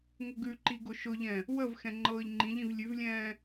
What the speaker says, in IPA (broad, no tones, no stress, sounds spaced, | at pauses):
ŋ ʊ ɡ ʉ ǃ i ɡ ʊ ʃ ʊ ʎ ɛ̃ | w ə v x ɛ̃ ŋ͡ǃ ɤː ʎ ŋ͡ǃ ĩ ʎ ĩ v lʲ ʉ v lʲ ɛ̃ː